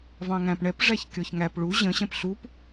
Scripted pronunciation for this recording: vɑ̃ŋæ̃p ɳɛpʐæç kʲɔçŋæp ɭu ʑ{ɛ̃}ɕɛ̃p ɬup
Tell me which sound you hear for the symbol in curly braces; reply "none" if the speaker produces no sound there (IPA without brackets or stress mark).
ə̃